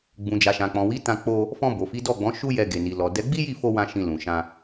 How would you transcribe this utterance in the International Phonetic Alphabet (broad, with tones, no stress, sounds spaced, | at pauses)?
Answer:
ɡ͡b ũ˨ d͡ʒ a˨ ʃ ã˨ k͡p ɔ̃˨ w i˨˦ t ã˧ k͡p o˧ | f ɔ̃˧ b o˨ f i˨˦ d ɔ˦˨ ɡ͡b ɔ̃˨˦ ʃ u˦ j ɛ˧ ɡ e˨ n i˨ l ɔ˨ d ɛ˨˦ ɡ͡b i˦ j i˦˨ f o˧ w ã˧ ʃ ĩ˧ l ũ˨ ʃ ã˧